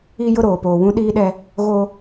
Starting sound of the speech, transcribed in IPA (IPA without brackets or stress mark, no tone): i